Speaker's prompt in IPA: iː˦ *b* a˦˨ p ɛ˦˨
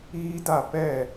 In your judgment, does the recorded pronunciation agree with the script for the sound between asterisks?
no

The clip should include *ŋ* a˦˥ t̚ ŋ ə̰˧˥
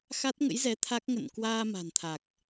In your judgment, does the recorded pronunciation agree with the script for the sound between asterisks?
no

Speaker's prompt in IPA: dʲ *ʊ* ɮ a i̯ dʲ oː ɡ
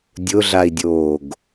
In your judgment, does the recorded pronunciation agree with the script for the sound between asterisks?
yes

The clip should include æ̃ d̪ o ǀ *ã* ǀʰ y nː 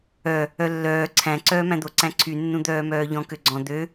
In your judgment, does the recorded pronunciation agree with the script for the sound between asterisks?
no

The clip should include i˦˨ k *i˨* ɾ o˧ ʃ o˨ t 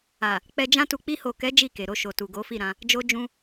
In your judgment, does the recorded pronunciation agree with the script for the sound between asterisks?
no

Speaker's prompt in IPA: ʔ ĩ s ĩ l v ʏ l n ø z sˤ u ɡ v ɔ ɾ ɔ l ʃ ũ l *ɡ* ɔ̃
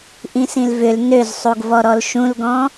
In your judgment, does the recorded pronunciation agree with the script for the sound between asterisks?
yes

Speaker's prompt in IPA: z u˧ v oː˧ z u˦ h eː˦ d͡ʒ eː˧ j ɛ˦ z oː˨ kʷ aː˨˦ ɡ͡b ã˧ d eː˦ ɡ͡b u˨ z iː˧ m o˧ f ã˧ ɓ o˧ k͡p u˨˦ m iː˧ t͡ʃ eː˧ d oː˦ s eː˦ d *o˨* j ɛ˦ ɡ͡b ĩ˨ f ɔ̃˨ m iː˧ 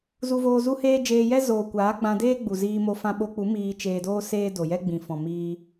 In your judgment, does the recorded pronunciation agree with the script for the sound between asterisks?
yes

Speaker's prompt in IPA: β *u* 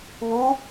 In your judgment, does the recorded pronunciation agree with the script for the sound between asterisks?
yes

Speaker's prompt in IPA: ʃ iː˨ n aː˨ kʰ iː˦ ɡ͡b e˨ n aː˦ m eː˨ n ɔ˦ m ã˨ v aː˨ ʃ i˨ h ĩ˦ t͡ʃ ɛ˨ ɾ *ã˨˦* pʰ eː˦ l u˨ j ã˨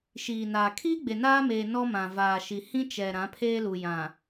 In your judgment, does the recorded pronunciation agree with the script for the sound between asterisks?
yes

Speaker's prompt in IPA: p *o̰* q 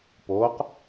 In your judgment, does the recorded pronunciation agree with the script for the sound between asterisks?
no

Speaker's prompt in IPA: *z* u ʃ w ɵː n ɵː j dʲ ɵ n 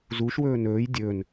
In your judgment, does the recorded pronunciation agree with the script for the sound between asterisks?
yes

